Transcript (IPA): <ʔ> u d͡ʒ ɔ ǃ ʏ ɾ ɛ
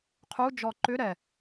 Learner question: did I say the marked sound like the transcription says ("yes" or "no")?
no